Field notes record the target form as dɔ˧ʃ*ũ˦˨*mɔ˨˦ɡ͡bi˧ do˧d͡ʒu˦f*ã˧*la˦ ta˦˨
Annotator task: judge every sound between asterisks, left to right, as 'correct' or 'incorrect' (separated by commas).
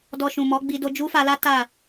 incorrect, incorrect